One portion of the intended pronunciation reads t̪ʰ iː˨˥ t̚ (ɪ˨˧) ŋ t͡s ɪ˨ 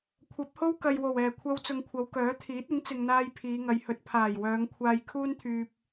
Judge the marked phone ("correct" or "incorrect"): incorrect